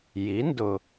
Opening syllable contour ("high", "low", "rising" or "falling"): rising